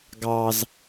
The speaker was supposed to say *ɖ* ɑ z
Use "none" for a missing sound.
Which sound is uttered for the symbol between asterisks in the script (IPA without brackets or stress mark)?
ɡ